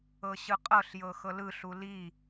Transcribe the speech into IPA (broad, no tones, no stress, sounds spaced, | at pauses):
ɤ ɕ ɯ qʼ ɤ ɬ j ɤ x ɤ l ɯ ɬ u l i